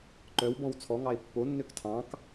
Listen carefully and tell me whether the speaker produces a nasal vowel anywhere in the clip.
yes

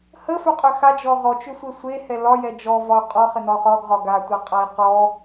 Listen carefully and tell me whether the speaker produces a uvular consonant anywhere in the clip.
yes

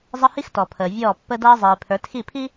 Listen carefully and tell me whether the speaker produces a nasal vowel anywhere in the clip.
no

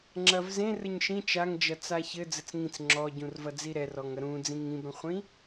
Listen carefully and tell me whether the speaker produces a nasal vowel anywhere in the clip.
yes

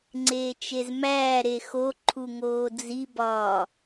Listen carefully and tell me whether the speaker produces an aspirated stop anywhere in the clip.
yes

